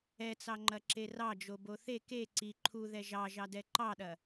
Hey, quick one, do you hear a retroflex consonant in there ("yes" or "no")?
no